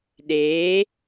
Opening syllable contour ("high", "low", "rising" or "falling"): rising